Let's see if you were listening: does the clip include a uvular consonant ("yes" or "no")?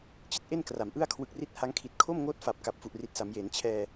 no